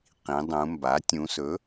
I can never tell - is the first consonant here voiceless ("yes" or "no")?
yes